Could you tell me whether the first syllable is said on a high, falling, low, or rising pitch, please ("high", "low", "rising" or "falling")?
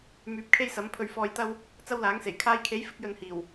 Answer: rising